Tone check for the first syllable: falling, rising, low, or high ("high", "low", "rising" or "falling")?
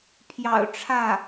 low